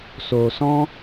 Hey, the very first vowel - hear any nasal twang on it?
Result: no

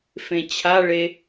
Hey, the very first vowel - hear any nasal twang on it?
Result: yes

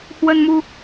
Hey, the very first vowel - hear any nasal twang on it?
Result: no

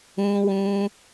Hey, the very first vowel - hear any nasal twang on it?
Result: yes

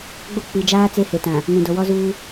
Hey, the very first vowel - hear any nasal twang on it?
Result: no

